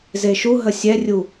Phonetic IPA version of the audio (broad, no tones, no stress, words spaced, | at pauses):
zeʃuɦə sʲɛrʲu